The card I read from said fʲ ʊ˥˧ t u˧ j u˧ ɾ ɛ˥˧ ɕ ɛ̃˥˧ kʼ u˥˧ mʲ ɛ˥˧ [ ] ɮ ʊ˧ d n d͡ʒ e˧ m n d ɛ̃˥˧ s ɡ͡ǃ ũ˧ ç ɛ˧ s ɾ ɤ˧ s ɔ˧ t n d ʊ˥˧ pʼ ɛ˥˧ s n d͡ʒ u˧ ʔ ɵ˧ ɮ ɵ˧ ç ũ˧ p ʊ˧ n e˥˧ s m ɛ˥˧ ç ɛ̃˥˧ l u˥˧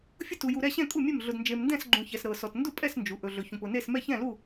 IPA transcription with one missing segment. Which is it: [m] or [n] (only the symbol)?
m